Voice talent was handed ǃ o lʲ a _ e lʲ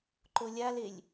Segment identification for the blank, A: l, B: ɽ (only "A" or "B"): A